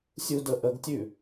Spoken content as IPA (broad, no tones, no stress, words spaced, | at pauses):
sʲudəʔəɡtʲʉ